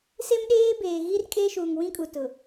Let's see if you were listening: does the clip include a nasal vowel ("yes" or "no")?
yes